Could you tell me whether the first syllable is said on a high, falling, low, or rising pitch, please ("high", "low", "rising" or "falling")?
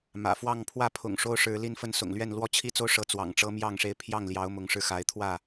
low